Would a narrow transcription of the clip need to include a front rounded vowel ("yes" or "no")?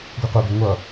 no